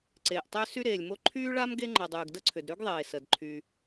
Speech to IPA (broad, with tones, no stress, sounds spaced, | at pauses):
ǀ eː˩ ʔ tˤ ʏː˥ s y˥ ɾ eː˩ lʲ m o˥ ǃʰ yː˥ ɭ a˥ m ɡ e˥ ŋ͡ǃ ə˩ dˤ yː˩ ɡ d ə˥ ǀʰ ʏ˩ d ɾ y˥ ɡ ðˤ eː˩ s ə˩ d ǃʰ y˩